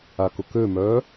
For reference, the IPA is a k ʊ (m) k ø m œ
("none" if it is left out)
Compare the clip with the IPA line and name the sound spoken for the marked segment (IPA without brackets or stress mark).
none